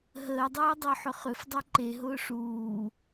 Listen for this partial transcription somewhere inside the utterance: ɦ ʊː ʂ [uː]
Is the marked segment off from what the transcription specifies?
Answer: no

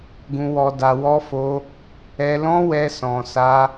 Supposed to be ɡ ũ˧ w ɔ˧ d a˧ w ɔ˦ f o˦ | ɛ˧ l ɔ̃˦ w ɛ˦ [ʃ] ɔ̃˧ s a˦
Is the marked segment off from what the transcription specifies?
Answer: yes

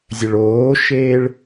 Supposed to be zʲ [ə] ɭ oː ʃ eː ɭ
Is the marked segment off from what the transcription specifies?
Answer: no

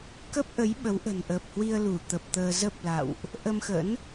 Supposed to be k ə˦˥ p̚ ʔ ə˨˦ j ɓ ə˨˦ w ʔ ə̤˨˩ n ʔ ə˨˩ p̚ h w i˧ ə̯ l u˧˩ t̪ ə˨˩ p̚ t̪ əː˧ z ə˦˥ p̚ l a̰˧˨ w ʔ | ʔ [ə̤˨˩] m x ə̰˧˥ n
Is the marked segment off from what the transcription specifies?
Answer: yes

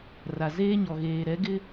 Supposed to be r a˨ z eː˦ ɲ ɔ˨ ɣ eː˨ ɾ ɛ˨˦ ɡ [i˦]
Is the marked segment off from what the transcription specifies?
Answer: yes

